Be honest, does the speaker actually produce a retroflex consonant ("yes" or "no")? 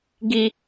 no